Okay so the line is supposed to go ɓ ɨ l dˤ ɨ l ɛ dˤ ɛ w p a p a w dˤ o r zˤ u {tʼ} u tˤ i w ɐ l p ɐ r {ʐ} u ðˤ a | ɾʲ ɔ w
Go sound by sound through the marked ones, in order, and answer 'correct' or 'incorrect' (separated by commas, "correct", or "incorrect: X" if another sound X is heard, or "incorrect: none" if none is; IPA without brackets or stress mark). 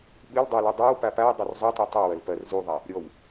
incorrect: tˤ, incorrect: z